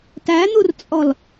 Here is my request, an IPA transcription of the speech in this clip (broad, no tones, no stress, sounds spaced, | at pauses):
t æ n̪ u r t͡sʼ ɔ l